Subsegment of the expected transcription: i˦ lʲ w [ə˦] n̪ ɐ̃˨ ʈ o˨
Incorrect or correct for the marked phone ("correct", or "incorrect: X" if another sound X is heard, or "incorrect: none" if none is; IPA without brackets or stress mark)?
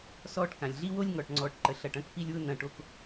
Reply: incorrect: ʊ˦